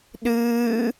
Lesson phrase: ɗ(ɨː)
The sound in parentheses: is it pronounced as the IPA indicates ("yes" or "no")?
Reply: yes